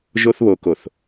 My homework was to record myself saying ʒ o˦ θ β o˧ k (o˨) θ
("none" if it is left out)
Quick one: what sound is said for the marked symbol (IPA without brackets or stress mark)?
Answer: o˨